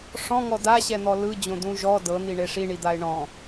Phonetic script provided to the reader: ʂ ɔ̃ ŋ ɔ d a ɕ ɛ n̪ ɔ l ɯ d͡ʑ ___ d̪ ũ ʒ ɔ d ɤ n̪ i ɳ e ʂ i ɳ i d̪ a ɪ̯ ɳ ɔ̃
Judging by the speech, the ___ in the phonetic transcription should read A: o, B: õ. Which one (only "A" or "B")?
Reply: B